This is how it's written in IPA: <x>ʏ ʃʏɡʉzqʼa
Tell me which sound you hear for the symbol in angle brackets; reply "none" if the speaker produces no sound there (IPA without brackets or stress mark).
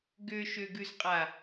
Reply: ɡ